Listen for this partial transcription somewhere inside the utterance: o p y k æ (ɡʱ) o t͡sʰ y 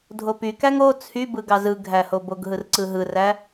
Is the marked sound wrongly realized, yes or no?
yes